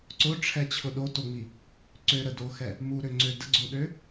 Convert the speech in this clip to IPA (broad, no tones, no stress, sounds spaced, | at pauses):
ǀ ʊ ʈ͡ʂʰ ɛ t͡ɕʰ ʊ ɗ o t o ŋ͡m i | ǀ ø ɾ ə d o x ɛ | m u ɾ ø ŋ͡ǀ ø d ə ɡ͡ǀ o ɗ ø